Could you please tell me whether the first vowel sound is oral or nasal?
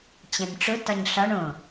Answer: nasal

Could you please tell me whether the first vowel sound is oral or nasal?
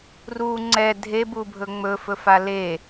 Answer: oral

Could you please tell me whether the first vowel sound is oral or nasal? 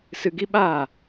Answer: oral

